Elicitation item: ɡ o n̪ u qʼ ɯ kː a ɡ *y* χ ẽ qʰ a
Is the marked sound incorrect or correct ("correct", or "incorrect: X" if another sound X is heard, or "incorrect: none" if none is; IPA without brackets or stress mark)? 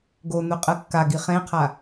incorrect: i